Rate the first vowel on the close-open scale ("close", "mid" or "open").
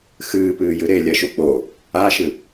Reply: close